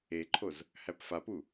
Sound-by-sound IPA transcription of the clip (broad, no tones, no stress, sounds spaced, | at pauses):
e ǃʰ o z | h æ p f a p u